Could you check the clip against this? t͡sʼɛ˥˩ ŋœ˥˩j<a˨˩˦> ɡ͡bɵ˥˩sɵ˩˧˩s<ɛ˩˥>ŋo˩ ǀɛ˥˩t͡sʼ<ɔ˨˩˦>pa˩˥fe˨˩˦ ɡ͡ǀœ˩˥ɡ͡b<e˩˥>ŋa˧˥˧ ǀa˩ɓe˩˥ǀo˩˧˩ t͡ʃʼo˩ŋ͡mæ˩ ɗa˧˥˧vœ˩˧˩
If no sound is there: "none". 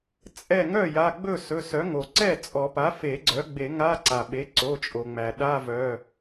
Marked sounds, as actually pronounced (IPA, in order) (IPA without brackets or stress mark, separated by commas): a˩˧˩, œ˩˥, ɔ˨˩˦, e˨˩˦